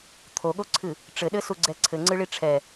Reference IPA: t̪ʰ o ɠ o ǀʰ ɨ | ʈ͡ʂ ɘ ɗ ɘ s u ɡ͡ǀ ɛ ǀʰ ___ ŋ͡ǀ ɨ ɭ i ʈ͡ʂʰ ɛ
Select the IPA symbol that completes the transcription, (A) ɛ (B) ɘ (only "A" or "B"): B